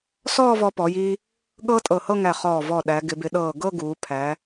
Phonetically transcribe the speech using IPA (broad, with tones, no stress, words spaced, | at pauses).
sɔː˥˧vɔ˧pɔ˩˧jiː˧ | ɠɤː˥tʼɤ˧˩hɤ˥˧ŋæ˧˩ χɔː˧˩vɔ˧˩ ɗæ˩˧ɡɪ˩˧bɪ˩˧ ɗɤː˧˩ɡɤ˥˧ɡuː˩˧ pʰæ˩˧